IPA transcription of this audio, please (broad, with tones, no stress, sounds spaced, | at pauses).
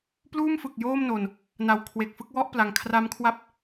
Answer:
p l uː˥˩ m f ɯ˨˩ k̚ j oː˥˩ m n o˨˩ n | n a˨˩ w kʰ w e˨˩ k̚ f ɯ˦˥ k̚ w ɔ˥˩ ʔ p l a˩˦ ŋ kʰ r a˦˥ m kʰ w a˥˩ p̚